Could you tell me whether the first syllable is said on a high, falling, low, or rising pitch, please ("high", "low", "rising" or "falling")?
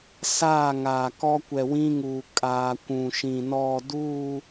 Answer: falling